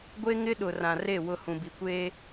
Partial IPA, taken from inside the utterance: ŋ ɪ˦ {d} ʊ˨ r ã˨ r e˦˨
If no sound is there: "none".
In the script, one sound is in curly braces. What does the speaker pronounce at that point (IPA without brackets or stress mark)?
ɗ